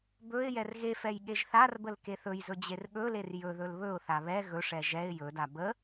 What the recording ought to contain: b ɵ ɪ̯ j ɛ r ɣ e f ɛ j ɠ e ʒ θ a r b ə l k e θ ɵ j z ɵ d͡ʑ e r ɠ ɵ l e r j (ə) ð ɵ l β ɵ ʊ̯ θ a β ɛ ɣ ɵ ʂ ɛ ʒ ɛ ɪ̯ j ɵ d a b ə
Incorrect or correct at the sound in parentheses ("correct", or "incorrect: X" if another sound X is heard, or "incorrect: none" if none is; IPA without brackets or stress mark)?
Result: incorrect: ɵ